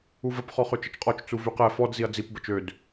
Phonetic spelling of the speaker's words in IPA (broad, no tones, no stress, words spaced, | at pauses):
uvəp χɔχøt͡ʃət͡ʃqʼɔt͡ʃ t͡suvyqɛ fɔd ziɐ̯d͡zip bət͡ʃød